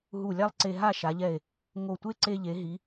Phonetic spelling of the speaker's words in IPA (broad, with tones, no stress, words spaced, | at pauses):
ɦu˧˩lʲa˥˧lˠǀe˧ ɦa˥˧ʃa˩˧ʎɛ˧˩e̯ | ŋo˧˩tʷe˥ ǀe˧ ʎe˩˧ɦi˩˧